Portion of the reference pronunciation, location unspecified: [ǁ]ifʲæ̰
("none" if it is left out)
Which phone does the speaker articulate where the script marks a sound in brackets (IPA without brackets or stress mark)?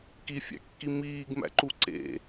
k